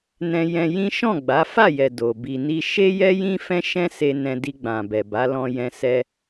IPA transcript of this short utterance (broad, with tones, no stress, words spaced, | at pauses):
nɛ̃˧jɛ̃˧jĩ˦ ʃɔ̃˦˨ɡ͡ba˨˦fa˦˨jɛ˨ do˨bi˧ni˦ ʃe˦ jɛ˦jĩ˦fɛ̃˦ʃɛ̃˦ se˧ nɛ̃˧di˧ɡ͡bã˨bɛ˨ ba˨˦lɔ̃˧jɛ̃˧ sɛ˧